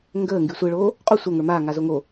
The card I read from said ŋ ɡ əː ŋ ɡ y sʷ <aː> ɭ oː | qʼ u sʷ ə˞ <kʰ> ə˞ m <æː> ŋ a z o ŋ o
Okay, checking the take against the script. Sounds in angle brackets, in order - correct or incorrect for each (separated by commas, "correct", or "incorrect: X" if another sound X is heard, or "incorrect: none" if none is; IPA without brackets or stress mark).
incorrect: əː, incorrect: ŋ, incorrect: aː